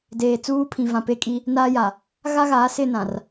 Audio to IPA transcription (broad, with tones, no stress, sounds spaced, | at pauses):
d eː˨ t͡s uː˦ pʰ ĩ˨ v ã˨ p e˦ kʼ i˦ | n aː˦ j a˨ | ɣ a˦ ɣ aː˨˦ s ɪ˦˨ n ã˨ r